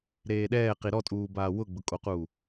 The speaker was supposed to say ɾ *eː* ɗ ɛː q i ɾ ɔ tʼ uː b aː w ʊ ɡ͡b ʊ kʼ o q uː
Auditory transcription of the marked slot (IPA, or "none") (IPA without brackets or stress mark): eː